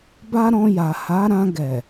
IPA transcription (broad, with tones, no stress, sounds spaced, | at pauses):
b a˦ ɾ ɔ̃˧ j a˨ h a˨˦ ɾ ã˧ ɡ ɛ˨